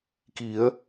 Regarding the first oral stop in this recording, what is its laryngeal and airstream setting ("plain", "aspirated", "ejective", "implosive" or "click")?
plain